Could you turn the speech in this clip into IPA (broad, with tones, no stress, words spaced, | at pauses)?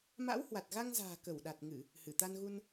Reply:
ma̰˧˥whwa˨˩t̚ɣa˧ŋza̤ː˨˩ kə˧˩wɗa˨˩t̚ŋɨ˧˩˨ | hɨ˧˩t̪a˧nɣu˧n